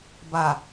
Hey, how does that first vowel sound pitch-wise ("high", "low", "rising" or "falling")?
low